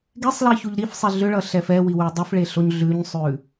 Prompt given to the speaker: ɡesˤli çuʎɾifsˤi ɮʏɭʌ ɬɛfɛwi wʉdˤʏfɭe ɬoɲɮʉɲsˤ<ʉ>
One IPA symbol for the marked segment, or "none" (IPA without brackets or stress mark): ʉ